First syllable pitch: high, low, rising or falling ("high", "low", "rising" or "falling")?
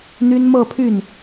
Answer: high